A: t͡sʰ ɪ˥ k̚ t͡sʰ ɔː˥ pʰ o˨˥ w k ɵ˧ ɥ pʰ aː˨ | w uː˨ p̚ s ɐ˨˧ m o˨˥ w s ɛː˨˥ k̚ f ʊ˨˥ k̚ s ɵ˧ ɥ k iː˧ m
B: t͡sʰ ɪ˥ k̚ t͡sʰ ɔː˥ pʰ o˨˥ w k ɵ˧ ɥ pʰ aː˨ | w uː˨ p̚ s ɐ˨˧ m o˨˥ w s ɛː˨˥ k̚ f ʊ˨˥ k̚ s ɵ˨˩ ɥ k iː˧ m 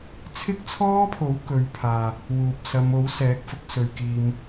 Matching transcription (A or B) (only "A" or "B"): A